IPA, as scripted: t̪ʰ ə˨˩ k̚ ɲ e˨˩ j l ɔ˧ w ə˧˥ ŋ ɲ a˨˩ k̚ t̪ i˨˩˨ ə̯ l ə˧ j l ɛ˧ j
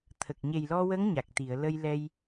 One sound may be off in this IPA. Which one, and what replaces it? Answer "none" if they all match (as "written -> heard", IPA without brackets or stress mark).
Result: none